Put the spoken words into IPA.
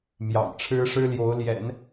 m j ɑ̰˨˩ ŋ ʈ͡ʂʰ ɻ̩˥ ʂ ɻ̩˥ l j o˧˥ ʊ̯ l j ɛ̰˨˩˦ n

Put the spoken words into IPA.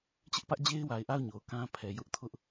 t͡ɕ ɪ˦ ʔ p ä˦ ʔ d͡ʑ e˦ ɪ̯ w a˨ ɪ̯ ʔ a˦˨ ʊ̯ ɲ o˨ ʊ̯ k ã˦ pʰ ɛ˨ j ʊ˦ ʔ tʰ ʊ˦ ʔ

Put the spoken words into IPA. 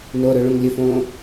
n o ɾ ɵ ɭ õ ŋ lʲ ɵ f õː

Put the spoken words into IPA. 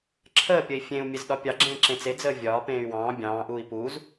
ǁʰ əː pʲ ə i̯ fʲ ẽ u̯ mʲ e z ɗ ɒ pʲ ɑ ɡ͡ǁ ẽː ǁ ẽ t͡s e d͡z əː vʲ ɒː p ẽː y̯ w ɑ̃ː bʲ ɑ̃ː ʔ uː i̯ p uː z

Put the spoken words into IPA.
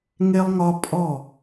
ŋ e˦ lˠ ŋ ɒ˦ pʼ ɔ˦˨

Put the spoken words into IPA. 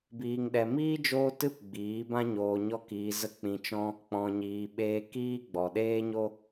b iː˨ ŋ ɗ ɛ˨ m iː˦ d͡ʒ oː˦ t ɨ˦ p ɡ͡b iː˨˦ b ã˦ ɲ oː˧ ɲ ɔ˦ k iː˧ z ə˦ k͡p ĩ˧ t͡ʃ ɔ̃˦ | k͡p ɔ̃˨ ɲ iː˨ ɓ eː˧ k iː˦ ɡ͡b ɔ˨ ɗ eː˦ ɲ o˦

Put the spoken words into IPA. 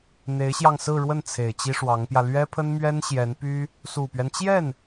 n̪ e˧˥ ɪ̯ ɕ j ɑ˧ ŋ s ɹ̩˥˧ ɻ w ə˥˩ n t͡sʰ e˨˩ ɪ̯ t͡ɕ i˥ ʂ w ɑ˧˥ ŋ p j ä˧ l ɥ ɛ˥ pʰ ə˥ n m ɥ ɛ˥ n ɕ j ɛ˧˥ n p y˥ | s u˨˩ p ɥ ɛ˦ n t͡ɕ j ɛ˥˩ n

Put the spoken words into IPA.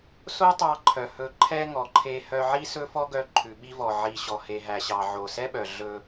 s o˥ tˤ ɑ˧ ǃʰ œ˩ h ɵ˧ ǃʰ ɛ˥ ŋ ɔ˩ ǃʰ e˧ h œ˧ ʕ i˥ s ɵ˥ f ɔ˥ ɡ œ˧ ǃʰ ʉ˩ ɓ i˧ v ɔ˩ ʕ i˩ ɕ ɔ˩ h e˩ ɦ æ˩ ɕ ɑ˩ ʕ o˩ s ɛ˥ ɓ œ˩ ɮ ɵ˧

